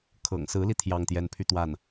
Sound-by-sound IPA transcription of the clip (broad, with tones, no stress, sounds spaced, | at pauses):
kʰ ɤ̰˨˩ ŋ s ɹ̩˧˥ l i˧ t̪ʰ j ɑ˥˧ ŋ t̪ j ɛ˥˧ n pʰ y˥˧ t̪ w a˥˩ n